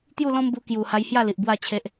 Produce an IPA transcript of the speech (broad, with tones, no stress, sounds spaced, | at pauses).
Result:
t̪ j u˥˧ l ɔ̃˦ m b u˧ k j u˨˩ h a˧ j h j a˥˧ l i˨ ʔ b w a˥˧ t͡ɕʰ e˦ ʔ